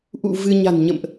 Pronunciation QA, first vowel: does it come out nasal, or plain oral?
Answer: oral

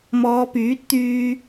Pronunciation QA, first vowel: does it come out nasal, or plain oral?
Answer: oral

